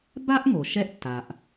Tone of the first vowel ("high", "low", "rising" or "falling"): high